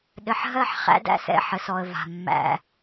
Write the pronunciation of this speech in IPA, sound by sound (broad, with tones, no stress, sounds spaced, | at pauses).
ɗ ɘ˨ ħ ɦ ɜ˦˨ ħ χ æ̰˦ d æ̰˦ s ɛ̰˦˨ ħ ə˨ s ɔ˨ ə̯ v a̤˨ mː æ̰˦